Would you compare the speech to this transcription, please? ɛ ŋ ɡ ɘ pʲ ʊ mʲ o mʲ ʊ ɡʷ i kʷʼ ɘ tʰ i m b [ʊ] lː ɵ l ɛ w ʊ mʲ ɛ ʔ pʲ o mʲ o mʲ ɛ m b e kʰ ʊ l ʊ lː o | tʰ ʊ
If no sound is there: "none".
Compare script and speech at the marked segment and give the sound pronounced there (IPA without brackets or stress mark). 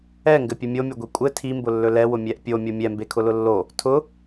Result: ʊ